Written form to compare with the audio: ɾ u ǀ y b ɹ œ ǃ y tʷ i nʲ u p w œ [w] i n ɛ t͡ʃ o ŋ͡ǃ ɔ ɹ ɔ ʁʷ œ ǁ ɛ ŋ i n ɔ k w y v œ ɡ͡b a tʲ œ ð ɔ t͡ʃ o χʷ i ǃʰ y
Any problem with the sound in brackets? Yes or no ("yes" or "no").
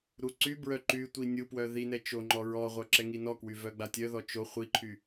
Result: yes